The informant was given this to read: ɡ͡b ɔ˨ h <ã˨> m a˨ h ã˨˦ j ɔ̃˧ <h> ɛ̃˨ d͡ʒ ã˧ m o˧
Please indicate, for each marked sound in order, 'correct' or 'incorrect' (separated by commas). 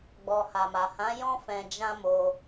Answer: incorrect, incorrect